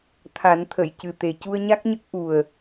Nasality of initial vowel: oral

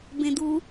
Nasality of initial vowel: nasal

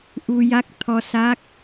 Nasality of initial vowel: oral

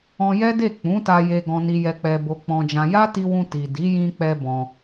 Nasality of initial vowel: nasal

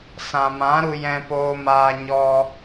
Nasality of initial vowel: nasal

